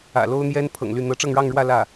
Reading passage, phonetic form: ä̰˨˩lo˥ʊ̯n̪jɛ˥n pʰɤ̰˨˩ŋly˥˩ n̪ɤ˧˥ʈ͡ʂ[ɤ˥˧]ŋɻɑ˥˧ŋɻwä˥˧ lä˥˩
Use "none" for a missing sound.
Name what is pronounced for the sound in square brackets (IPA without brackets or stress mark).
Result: ɤ˥˧